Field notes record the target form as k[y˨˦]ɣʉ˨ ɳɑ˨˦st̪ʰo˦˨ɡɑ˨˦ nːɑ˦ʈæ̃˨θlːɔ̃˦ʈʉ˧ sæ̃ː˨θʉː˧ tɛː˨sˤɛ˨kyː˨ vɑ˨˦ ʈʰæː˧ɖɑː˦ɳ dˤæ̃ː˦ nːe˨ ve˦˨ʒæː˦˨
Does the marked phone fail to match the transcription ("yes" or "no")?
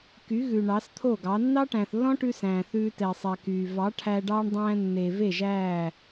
no